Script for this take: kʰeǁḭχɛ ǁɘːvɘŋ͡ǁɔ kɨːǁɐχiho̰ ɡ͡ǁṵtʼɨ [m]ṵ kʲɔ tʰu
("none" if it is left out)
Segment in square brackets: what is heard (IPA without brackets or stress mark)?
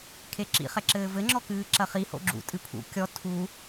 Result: pʰ